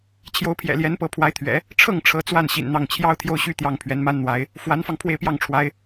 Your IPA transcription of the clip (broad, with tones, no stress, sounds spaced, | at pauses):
t͡ɕʰ j o˧˥ ʊ̯ pʰ j ɛ̰˨˩ l j ɛ˧˥ n p ɤ˧˥ pʰ w a˧˥ ɪ̯ t̪ʰ ɥ ɛ̰˨˩˦ | ʈ͡ʂʰ ɤ˥˩ ŋ ʈ͡ʂʰ ɤ˧˥ t͡s w a˥˩ n ɕ ḭ˨˩ n n̪ ɑ˥˩ ŋ t͡ɕʰ j ɑ˥ ʊ̯ t̪ʰ j o˥˧ ʊ̯ ɕ y˥˧ t̪ j ɑ˥˩ ŋ pʰ ɥ ɛ˧˥ n m a˥ n n̪ w a˧˥ ɪ̯ | f w a˧˥ n f ɑ˧ ŋ pʰ w e˥˧ ɪ̯ p j ɑ˥˩ ŋ ʈ͡ʂʰ w a˧˥ ɪ̯